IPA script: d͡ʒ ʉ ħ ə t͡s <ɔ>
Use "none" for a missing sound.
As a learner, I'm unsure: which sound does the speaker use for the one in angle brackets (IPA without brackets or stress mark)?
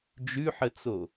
o